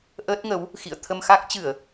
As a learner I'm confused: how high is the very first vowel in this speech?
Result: mid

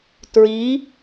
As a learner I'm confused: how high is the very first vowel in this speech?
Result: high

